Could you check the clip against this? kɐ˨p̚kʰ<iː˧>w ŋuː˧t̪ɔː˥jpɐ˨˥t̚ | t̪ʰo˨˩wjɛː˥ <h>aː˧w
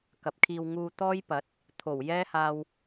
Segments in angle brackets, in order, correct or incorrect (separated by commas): correct, correct